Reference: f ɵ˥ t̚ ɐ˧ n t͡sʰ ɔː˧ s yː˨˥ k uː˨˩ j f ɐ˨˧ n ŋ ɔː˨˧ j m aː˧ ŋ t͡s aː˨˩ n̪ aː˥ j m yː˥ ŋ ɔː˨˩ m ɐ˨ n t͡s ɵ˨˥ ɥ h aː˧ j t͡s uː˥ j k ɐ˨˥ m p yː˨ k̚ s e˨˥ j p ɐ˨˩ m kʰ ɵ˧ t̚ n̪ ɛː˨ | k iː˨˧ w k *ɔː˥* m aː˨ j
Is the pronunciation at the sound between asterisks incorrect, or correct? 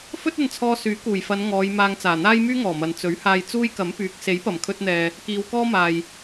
correct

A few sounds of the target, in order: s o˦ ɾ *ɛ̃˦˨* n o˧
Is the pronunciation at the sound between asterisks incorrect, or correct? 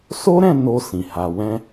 correct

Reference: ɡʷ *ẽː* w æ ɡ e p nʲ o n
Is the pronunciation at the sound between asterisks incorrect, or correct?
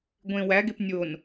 incorrect: ẽ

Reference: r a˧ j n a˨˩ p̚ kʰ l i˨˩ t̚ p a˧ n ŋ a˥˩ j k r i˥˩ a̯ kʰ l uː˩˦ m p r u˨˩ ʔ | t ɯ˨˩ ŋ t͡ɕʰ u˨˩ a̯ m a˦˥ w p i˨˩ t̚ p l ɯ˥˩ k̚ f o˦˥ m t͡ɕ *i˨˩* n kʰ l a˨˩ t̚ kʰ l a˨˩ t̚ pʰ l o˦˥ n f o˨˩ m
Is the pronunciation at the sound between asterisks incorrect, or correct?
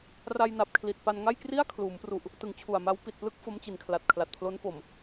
correct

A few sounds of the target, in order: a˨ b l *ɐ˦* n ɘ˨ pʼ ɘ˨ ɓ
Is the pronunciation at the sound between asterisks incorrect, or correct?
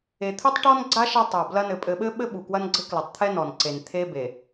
correct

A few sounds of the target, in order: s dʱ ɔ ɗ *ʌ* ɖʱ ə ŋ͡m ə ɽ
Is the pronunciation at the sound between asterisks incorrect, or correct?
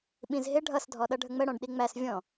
correct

